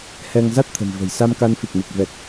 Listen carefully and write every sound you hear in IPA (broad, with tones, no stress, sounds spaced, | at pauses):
h ɛ˧ ŋ z a˦˥ t̚ t̪ʰ ə̤˨˩ m v ə̤˨˩ j s a˧ m k a˧ n f i˨˩ k̚ m i˨˩ k̚ v ɛ˨˩ k̚